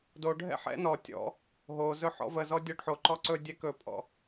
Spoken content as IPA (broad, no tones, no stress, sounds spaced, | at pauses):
d o ɖʱ ɛ̰ ħ ɛ̰ n ɔ tʲ ɔ̰ | ɦ o z ɵ ħ ɔ̰ v ə z ɔ dʲ ɔ ɖ ħ o ǃ ɔ ǀ ɵ dʲ ɛ k ɵ pʼ ɔ̰